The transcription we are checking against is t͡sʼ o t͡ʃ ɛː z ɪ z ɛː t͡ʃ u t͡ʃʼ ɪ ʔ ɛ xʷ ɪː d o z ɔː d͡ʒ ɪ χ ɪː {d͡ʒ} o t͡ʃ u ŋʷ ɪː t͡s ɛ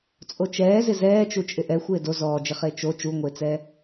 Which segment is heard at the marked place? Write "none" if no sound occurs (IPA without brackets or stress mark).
t͡ʃ